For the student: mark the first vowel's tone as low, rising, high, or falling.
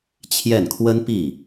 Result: falling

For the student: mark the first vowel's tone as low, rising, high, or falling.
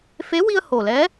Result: rising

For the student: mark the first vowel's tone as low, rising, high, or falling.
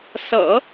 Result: low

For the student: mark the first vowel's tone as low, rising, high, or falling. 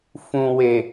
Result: low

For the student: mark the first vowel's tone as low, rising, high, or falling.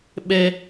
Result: high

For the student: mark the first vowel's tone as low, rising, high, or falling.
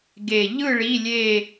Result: low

